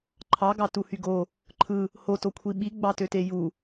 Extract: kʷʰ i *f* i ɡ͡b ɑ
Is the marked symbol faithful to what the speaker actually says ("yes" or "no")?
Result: no